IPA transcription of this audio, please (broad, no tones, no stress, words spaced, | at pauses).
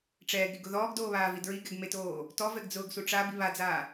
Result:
ʈ͡ʂɛːɡɾiɡʊ ðɔːɡdoːβaːvi dɹiɡɛɡmetoː | tɔvɛɡd͡zʊːɡsu ʈ͡ʂabi βad͡zaː